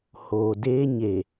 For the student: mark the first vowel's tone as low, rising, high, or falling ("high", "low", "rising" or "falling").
low